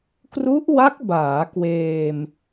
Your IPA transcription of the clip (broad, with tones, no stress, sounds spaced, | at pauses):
k r u˦˥ ʔ w a˦˥ k̚ b aː˩˦ k w eː˧ m